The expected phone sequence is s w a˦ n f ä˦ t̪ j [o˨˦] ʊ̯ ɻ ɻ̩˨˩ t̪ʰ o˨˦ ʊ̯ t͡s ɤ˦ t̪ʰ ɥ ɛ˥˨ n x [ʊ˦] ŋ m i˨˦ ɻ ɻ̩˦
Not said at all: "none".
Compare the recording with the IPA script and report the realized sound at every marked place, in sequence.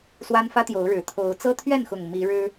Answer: o˨˦, ʊ˨˩

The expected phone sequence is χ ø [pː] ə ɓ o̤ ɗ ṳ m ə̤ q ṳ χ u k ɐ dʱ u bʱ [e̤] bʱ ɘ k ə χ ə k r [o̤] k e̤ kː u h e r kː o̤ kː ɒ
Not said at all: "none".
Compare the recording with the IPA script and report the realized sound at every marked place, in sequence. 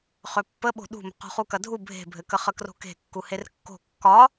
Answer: pː, e̤, o̤

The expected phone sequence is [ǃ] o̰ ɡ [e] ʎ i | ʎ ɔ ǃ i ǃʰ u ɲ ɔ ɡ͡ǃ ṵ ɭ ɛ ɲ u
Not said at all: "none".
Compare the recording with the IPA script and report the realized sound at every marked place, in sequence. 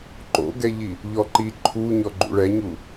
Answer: ǃ, ɛ

